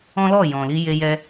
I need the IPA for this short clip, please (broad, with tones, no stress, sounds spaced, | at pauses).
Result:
ɔ̃˦ l ɔ˦˨ j ɔ̃˨ l i˧ j e˧ j ɛ˧